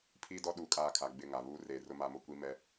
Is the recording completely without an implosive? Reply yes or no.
no